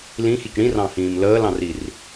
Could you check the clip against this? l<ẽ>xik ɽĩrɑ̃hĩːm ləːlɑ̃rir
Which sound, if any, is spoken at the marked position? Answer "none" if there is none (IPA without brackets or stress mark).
ĩ